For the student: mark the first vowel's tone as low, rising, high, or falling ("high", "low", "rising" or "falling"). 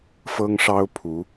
high